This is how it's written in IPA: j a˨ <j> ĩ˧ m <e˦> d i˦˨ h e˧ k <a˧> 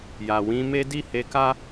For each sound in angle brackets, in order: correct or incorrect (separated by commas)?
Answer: incorrect, correct, incorrect